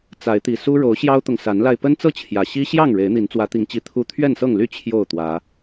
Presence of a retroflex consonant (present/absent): present